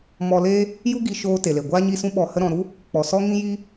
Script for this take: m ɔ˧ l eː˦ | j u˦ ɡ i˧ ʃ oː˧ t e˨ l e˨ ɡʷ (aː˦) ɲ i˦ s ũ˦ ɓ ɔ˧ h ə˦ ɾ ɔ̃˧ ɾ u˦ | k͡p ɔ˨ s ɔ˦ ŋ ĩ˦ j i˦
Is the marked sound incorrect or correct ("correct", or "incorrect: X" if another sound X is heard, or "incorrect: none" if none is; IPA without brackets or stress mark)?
correct